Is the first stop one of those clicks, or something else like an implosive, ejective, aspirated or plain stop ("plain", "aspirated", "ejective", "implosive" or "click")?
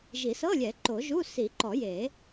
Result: click